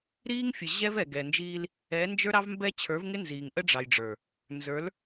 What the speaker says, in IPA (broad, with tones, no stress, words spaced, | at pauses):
ɾiː˦ŋ fʲə˨ʑɛ˦v ɛ˨ ɡɛ˨nd͡ʒiː˦l | ɛ˨˦nd͡ʒə˞˦ɾɑ˦vmbɛ˦ t͡ɕʰə˞˨˦vŋɪ˦nziː˨ŋʔə˦ ɖ͡ʐɑ˨jɖ͡ʐə˞˨ | nzə˞˨˦l